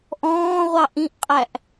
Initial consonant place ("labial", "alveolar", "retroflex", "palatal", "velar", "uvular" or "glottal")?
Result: glottal